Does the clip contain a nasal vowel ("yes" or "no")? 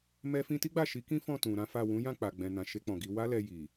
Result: yes